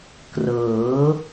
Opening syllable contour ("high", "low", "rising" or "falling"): rising